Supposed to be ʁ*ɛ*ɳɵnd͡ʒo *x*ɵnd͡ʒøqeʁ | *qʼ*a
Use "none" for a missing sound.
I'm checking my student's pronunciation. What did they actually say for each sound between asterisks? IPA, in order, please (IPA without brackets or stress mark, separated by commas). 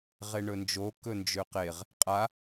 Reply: e, k, qʼ